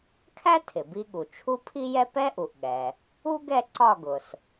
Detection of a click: present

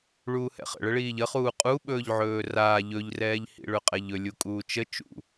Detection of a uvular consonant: present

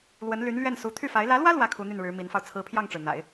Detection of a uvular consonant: absent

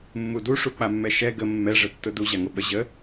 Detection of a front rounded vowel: absent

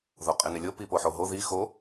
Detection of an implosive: absent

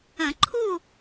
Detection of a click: present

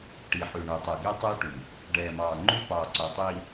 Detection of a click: present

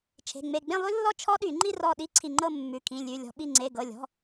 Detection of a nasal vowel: present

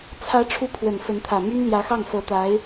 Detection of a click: absent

